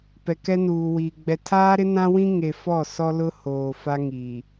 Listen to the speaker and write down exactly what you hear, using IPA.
p ɛ˨ k ɛ˦ n uː˨ w iː˨ ɡ͡b ɛ˨ tʰ aː˦ ɾ ɪ˦ n ã˦ w ĩ˦ ŋ e˨ f ɔ˦˨ s ɔ˦ l ʊ˦ h oː˨ f a˦ ŋ iː˨

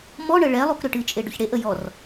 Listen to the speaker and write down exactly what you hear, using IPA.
m ɔ ɳ ə ɭ ɛ lˠ u k ɾ ʏ ʈ ɨ t͡ʃʼ e ɖ ʏ ç ɽ e ʔ ə j ɔ r

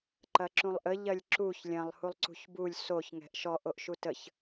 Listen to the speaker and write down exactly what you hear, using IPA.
ǃ ɐ ǁ ũ lˠ ʔ ə ʎ ɐ lʲ ǁ u ç lʲ ɐ̃ lˠ h u lˠ ǀ ṳ ç b u lʲ s o ç ŋ ɛ̤ ʔ ʃ ɔ ʔ o ʔ ʃ u t ə ç

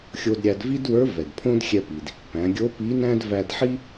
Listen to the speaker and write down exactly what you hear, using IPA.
xʲ o˧ d ɾʲ æ˧ d v i˥ d w ə˞˧˥ v ɛ˩ d pʰ õ˥ d xʲ ɛ˧ p i˩ d | p æ̃˩˧ ɡʲ o˧˥ p i˧˥ n æ̃˥ d v æ˧ d ħ i˥

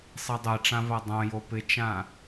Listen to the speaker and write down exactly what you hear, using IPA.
sˤ i dˤ e ʈ͡ʂ ã v a dˤ õ j o p ɪ t͡ʃ ã

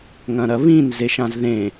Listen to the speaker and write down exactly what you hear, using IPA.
ŋ ɐ̃ ɾ ɐ β ĩ n z e ʃ ã z ð ẽ

